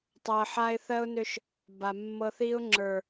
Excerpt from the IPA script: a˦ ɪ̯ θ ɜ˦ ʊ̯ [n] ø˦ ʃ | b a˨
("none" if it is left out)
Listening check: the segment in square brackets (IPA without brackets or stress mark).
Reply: n